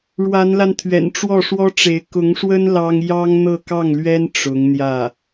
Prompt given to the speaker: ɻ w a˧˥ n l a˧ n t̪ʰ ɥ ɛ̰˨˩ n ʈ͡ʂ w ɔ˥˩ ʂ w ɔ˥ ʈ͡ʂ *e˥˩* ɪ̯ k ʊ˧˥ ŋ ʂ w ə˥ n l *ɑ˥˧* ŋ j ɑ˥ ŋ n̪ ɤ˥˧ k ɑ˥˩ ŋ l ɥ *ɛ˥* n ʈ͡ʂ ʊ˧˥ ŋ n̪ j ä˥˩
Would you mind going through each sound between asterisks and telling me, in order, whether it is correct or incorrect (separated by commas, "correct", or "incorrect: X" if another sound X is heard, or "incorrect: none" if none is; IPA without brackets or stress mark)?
incorrect: e˧˥, incorrect: ɑ˥, correct